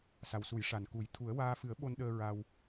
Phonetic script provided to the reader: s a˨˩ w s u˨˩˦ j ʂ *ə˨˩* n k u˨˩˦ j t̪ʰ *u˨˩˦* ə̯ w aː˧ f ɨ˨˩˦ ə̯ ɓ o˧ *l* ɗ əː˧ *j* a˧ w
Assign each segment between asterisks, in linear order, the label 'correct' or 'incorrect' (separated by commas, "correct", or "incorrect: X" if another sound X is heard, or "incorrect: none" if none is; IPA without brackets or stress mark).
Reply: incorrect: a˨˩, correct, incorrect: n, incorrect: ɹ